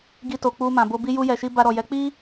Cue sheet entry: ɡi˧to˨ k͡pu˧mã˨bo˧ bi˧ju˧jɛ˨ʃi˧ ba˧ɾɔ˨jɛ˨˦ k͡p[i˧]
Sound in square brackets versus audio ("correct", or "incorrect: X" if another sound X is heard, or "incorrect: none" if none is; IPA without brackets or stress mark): incorrect: i˦